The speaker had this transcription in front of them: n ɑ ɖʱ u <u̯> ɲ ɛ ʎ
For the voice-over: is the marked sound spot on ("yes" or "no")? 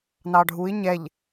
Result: no